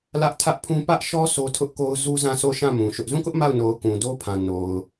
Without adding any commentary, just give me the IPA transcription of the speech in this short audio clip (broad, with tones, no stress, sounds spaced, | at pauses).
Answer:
l ä˦ ʔ tʰ ä˦ ʔ pʰ ũ˦ p ä˦ ʔ ʃ ɔ˦ s o˦ tʰ ʊ˦ ʔ k o˦ ʊ̯ z u˦ z ã˦˨ s o˦˨ ʃ ã˦˨ m ũ˨ ʃ ʊ˦ ʔ z ũ˦˨ k ʊ˦ ʔ m a˦˨ ʊ̯ n o˨ ʊ̯ k ũ˨ d o˦ pʰ ã˨ n o˨ ʊ̯